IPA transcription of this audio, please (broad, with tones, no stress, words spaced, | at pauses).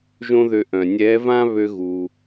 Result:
ʒõ˥ðø˧ ʔœ̃˩nʲɛ˧˥vã˥ βø˥ɣu˩